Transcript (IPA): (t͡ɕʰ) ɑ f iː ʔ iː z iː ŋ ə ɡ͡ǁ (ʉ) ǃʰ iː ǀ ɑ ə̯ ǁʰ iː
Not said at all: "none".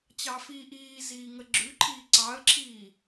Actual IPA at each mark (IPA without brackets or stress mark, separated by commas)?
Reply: t͡ɕ, ʉ